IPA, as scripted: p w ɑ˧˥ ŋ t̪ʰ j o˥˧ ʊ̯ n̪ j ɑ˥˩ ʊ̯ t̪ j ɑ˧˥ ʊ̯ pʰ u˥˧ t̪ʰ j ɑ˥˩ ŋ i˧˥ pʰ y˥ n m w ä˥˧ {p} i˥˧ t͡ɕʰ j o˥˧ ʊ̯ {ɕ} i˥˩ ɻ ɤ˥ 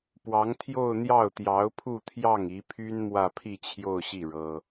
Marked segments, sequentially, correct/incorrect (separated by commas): incorrect, correct